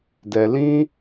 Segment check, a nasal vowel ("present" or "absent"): present